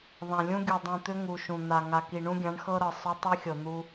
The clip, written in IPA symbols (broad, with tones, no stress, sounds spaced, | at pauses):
ðˤ ã˨ lʲ ũ˦ ɡʲ u˨ dˤ ũ˨ t̪ ʏ˦ ŋ u˨ ʃ ũ˨ n̪ a˨ ŋ a˨ k i˨ ɳ ũ˦ ɡʲ ã˨˦ ɳ x ɤ˦ ɾ ɤ˨ sˤ ʏ˦ tˤ i˦ xʲ ɤ˨ n̪ u˦